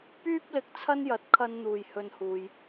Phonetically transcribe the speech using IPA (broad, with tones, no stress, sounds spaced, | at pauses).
p yː˥ p̚ l ɪ˧ k̚ t͡sʰ ɐ˥ n j ɐ˨˥ t̚ kʰ ɐ˧ n n̪ uː˨ j h ɵ˧ n h uː˨ j